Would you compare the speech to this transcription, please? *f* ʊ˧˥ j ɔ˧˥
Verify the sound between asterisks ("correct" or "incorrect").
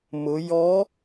incorrect